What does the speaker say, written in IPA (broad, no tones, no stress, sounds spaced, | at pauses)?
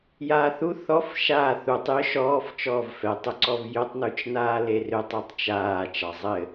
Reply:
j aː θ u θ ɔ f ʃ aː θ u tˤ j ʏ ʃ ɔː f t͡ʃ ɔː v f ɛ tˤ ʏ ǀ ɔ v j ʏ tˤ n u t͡ʃ n aː l e r ʏ tˤ e tˤ t͡ʃ aː t͡ʃ ɑ zˤ ɘ